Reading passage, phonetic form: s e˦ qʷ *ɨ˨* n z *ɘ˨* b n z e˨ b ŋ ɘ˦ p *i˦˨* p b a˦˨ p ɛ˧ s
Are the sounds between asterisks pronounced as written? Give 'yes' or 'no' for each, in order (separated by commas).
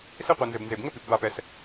no, yes, no